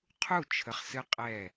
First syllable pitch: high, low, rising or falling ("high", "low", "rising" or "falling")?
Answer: falling